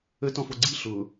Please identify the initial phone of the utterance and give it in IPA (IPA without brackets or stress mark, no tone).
ə